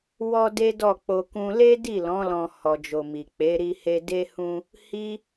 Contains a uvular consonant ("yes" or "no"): no